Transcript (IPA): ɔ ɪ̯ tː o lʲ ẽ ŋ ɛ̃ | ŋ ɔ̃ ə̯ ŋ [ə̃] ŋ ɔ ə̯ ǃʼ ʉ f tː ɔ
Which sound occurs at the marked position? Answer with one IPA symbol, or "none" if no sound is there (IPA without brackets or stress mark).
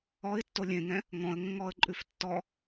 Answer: ə̃